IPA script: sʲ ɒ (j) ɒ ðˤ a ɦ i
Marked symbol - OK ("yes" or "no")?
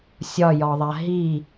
yes